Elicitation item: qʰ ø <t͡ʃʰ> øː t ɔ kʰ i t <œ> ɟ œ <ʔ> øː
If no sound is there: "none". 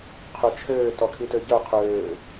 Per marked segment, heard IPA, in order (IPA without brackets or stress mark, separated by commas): t͡ʃʰ, ø, qʰ